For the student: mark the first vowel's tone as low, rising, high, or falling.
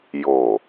low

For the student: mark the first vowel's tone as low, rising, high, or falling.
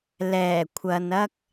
low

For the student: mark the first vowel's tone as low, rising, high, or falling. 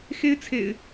high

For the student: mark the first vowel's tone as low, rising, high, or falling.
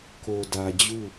low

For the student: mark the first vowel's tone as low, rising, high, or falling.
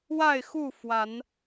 falling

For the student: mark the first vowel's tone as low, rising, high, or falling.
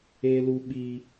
high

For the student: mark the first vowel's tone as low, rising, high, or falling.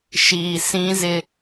low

